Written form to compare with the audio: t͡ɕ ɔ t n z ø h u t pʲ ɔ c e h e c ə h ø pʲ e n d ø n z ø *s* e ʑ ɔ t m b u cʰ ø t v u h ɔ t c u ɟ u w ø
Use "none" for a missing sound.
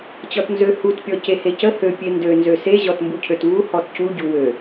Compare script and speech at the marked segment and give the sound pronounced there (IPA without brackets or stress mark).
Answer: s